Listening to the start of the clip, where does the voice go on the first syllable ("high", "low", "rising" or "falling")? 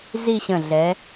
falling